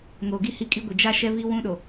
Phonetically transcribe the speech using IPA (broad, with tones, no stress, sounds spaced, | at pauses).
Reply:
ŋ o˨ ɡ i˦ h i˦ kʼ i˦ ɡʷ ɪ˨ d͡ʒ a˦ ʃ ɛ˦ v i˦ w ũ˦ ɗ o˨